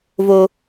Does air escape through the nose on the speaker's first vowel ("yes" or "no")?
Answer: no